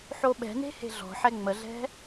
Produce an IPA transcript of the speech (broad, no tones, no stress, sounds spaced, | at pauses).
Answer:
ħ o ɓ ɛ̤ n e̤ h e̤ ɮ ɔ̤ ħ ɛ ŋ͡m ə ɮ ɛ̤